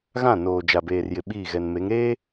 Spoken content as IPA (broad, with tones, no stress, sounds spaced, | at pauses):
ɣ ã˦˨ n oː˨ d͡ʒ a˨ b eː˨ r j ɪ˨ ɓ iː˦˨ ɣ ɛ˨ n m e˨˦ ŋ ɾ eː˦